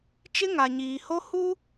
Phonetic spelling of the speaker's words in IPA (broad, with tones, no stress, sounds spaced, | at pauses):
t͡ʃ ɪ˦ ŋ a˨ ɲ iː˨ h o˦ h u˦